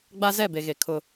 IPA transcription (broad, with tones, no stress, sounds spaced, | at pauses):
ɡ͡b a˦ z ɛ˦˨ b e˨ ɣ e˨ kʰ ʊ˦